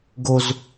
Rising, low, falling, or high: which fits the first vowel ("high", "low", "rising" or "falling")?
high